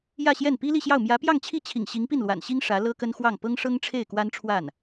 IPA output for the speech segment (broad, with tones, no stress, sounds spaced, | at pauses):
j ä˥˧ ɕ j ɛ˥˩ n p i˥ l i˥˧ ɕ j ɑ˥˩ ʊ̯ m j ä˧˥ p j ɑ˥˧ ŋ t͡ɕʰ i˥˩ t͡ɕʰ ḭ˨˩ ŋ ɕ i˧˥ ŋ p i˥˩ n l w a̰˨˩ n ɕ i˥ ŋ ʂ ä˧˥ l ɤ˥ k ə˥ n x w ɑ˥˩ ŋ p ɤ˥ ŋ ʂ ɤ˥ ŋ ʈ͡ʂʰ e˥˩ ɪ̯ k w a˥ n ʈ͡ʂʰ w a˥˩ n